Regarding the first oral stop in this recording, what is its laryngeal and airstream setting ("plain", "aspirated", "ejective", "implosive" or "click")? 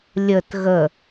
plain